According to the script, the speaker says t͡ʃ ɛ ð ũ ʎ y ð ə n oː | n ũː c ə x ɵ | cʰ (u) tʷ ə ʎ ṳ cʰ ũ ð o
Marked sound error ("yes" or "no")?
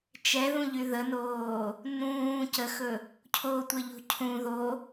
yes